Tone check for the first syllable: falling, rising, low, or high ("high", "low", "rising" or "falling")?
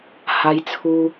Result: high